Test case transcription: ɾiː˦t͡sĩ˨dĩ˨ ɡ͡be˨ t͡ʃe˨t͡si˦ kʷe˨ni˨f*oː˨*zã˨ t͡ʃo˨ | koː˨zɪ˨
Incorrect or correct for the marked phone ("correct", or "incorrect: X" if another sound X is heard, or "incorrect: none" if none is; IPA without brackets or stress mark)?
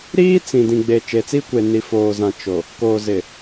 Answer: correct